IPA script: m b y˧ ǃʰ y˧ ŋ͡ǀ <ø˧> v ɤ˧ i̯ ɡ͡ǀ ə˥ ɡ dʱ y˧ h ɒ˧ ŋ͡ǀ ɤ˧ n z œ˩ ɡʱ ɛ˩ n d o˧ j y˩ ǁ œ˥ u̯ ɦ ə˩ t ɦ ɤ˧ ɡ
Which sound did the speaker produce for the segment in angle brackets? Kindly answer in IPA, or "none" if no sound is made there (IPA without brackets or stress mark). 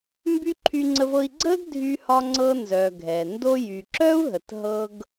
ə˧